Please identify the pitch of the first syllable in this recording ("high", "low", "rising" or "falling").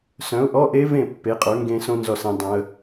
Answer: rising